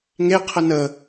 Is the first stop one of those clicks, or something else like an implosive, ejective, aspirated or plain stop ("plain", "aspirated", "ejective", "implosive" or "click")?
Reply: aspirated